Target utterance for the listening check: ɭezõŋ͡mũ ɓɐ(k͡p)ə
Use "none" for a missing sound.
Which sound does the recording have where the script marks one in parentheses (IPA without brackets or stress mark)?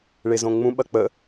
k͡p